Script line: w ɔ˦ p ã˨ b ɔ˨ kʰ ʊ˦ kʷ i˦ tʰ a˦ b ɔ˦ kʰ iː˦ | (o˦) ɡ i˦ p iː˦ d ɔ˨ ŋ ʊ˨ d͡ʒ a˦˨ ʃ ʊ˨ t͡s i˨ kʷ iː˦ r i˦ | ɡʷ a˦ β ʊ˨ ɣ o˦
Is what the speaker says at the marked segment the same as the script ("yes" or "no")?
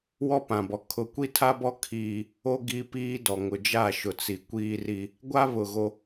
yes